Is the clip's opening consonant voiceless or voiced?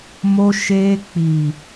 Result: voiced